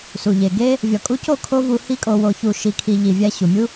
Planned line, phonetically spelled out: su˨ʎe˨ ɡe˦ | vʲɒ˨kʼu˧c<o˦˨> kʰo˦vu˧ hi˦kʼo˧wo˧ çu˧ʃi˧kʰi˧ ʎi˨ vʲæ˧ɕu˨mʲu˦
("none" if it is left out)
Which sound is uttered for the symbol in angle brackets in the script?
o˦˨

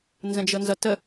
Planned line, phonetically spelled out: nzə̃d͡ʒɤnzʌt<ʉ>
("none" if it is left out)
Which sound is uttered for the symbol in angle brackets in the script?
ə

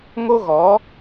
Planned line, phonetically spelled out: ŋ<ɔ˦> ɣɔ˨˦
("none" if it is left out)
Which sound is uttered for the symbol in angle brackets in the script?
o˦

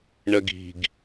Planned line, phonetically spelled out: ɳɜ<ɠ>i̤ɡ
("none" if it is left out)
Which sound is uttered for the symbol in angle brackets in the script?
ɡ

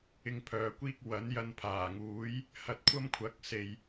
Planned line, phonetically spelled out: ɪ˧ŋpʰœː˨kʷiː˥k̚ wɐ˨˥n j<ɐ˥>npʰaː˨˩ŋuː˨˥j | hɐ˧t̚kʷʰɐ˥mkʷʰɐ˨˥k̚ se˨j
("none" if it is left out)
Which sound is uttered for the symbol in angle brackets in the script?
ɐ˧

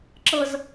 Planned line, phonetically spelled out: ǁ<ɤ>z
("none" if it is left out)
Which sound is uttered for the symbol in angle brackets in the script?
ɤ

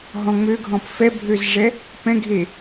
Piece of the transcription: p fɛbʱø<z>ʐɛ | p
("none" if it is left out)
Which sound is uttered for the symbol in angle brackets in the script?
z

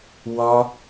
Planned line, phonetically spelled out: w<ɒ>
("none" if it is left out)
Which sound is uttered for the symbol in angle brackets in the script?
ɒ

